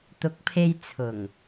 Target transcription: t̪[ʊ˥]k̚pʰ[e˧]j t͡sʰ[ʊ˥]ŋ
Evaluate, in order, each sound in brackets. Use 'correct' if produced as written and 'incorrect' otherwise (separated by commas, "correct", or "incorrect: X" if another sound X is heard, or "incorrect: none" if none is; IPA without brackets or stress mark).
incorrect: ʊ˨˥, correct, incorrect: ʊ˨˩